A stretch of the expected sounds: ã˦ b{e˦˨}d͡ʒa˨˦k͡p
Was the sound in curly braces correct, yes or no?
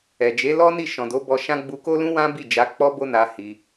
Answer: no